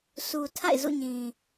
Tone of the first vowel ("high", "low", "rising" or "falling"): low